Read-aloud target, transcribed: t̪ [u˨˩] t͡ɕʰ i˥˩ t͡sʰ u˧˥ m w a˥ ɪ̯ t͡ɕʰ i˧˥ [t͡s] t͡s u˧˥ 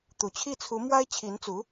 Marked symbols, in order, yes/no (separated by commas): yes, no